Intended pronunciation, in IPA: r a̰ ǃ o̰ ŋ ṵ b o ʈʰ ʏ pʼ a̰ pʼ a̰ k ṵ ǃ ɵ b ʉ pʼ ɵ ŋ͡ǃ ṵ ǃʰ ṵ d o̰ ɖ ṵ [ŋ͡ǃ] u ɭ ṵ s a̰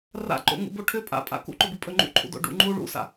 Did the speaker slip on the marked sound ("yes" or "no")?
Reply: no